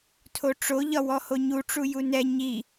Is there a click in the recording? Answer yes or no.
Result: no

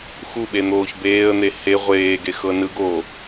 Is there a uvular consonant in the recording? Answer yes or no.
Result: yes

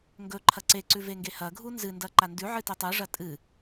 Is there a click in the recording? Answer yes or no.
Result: yes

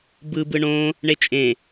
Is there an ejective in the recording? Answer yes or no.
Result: yes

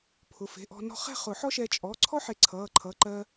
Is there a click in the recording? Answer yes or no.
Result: yes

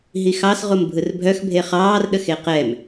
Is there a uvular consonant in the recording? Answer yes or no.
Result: yes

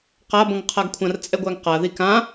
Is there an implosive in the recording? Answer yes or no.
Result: no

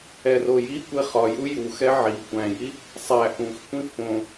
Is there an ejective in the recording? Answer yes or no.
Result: no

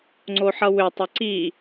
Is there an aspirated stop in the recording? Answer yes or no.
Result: no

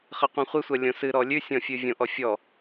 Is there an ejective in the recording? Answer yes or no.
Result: no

